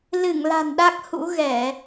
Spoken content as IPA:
l ɨ˧˩ ŋ l a̤˨˩ n ɗ a˦˥ k̚ h ṵ˧˥ ɣ ɛ˧˩˨

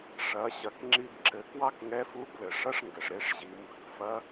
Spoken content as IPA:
ʂ ɐ˩˧ ɕ ɐ˩˧ k ŋ͡ǁ i˧ b ǁ ɘ˩˧ k w ɑ˥ k ŋ ɛ˧˥ f u˧˥ b l ɘ˩ ʂ ɐ˥ ʂ ŋ ɡ ɘ˩ ʂ ɾ e˧ ʂ ʑ i˩˧ m b ɘ˧ k f ɐ˧˥

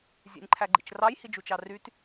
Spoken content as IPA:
zʲ ḛ nʲ ǃʰ æ ɡ͡ǃ ḭ t͡ʃ r ɑ j h i d͡ʒ u t͡ʃ ɑ r y t

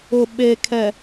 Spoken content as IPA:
ʊ˨ ɓ e˨ kʰ ɛ˨

